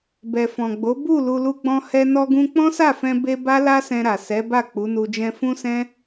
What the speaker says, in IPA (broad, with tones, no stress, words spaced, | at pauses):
bɛ˨fɔ̃˨ɡ͡bo˨˦ bu˦˨ lu˧lu˦ɡ͡bɔ̃˦ hɛ˧nɔ˧ɡũ˧ k͡pɔ̃˦sa˦˨fɛ̃˧ be˧ ba˦la˦sɛ̃˧ɾa˨ sɛ˨˦ba˦˨ k͡pu˨˦nu˧d͡ʒɛ̃˦ fũ˦sɛ̃˦